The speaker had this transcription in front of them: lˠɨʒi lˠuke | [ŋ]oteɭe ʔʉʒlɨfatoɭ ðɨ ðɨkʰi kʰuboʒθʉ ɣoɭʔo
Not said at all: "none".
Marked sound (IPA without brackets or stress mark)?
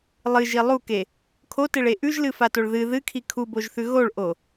kʰ